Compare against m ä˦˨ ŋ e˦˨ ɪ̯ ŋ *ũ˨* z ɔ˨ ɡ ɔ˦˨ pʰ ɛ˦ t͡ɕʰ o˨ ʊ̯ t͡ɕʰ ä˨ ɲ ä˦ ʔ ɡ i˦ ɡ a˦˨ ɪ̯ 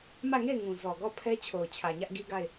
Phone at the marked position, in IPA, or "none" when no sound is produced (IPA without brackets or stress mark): ũ˨